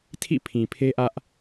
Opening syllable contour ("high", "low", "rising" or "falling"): falling